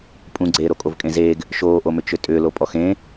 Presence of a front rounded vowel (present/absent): present